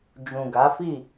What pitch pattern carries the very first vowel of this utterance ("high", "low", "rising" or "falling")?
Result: low